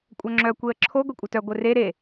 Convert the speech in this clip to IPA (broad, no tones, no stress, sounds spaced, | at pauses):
kʷʼ œ ŋ͡ǁ œ kʷ e ə̯ ǁʰ o ɡʷ i kʷʼ ɘ t œ ɡʷ ɘ r e ɾ e